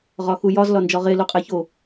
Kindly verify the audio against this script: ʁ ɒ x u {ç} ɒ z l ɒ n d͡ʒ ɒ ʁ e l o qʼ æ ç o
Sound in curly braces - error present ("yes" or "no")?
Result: yes